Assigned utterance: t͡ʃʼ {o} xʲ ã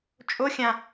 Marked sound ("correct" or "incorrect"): correct